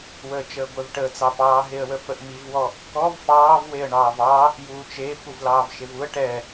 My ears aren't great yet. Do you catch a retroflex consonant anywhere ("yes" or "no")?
yes